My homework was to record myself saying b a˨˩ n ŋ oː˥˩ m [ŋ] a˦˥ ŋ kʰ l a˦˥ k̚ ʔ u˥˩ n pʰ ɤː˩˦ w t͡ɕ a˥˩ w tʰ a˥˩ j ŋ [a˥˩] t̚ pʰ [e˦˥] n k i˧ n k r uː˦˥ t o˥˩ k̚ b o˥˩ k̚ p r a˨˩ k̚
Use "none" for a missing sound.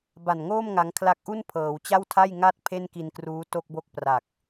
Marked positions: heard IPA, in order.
ŋ, a˥˩, e˥˩

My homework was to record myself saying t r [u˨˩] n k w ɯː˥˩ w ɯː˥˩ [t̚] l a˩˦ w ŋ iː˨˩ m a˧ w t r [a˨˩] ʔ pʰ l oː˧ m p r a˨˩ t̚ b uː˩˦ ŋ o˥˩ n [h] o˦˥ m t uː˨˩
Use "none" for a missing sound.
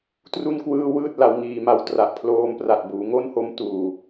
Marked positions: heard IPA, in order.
u˥˩, t̚, a˨˩, h

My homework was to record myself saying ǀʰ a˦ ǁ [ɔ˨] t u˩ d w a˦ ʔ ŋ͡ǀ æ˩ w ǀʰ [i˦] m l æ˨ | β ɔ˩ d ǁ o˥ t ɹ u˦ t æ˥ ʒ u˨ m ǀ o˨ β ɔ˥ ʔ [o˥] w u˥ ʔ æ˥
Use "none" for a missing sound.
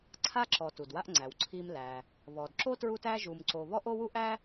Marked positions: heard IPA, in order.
ɔ˩, i˦, o˥

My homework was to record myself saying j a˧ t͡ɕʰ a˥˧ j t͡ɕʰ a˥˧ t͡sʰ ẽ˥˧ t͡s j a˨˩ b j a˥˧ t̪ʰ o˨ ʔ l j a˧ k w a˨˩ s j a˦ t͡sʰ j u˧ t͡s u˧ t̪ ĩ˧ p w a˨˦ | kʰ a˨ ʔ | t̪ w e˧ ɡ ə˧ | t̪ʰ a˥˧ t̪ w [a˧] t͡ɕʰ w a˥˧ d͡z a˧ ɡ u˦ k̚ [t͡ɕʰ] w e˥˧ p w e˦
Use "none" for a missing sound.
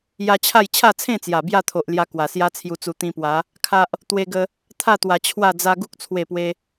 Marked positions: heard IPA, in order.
a˨˩, t͡sʰ

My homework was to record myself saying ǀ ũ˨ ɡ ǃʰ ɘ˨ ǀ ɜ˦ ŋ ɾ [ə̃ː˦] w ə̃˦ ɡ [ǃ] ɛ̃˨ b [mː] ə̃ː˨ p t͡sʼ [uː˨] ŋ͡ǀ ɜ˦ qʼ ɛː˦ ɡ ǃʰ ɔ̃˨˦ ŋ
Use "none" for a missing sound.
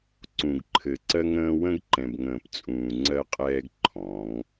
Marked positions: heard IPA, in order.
ə̃ː˦, ǃ, ŋ, ũː˨

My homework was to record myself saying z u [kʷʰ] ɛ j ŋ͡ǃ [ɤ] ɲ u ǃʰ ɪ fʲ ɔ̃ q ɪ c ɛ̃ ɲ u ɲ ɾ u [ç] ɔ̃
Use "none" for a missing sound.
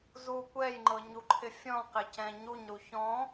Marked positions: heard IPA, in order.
kʷ, ɤ, ç

